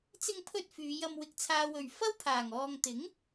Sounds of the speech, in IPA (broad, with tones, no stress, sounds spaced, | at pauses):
t͡s ɪ˧ ŋ pʰ ɵ˧ t̚ f yː˨˧ j ɐ˧ m w ɪ˨ k̚ t͡sʰ aː˨ w ɵ˨˩ ɥ f ɐ˥ w pʰ aː˨˩ ŋ ɔː˨ ŋ t̪ ɪ˨˥ ŋ